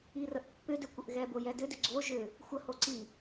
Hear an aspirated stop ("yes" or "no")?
no